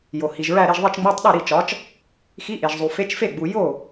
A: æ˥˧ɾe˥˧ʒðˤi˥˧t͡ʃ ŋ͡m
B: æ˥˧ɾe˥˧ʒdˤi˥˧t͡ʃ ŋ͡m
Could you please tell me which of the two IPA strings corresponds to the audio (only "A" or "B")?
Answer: A